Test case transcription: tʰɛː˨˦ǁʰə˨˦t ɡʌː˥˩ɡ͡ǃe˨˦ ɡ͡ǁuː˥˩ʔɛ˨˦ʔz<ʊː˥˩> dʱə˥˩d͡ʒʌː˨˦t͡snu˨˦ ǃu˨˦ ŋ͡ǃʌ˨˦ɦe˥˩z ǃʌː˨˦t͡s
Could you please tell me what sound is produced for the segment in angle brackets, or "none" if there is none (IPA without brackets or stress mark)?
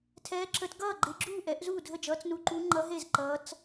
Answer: uː˥˩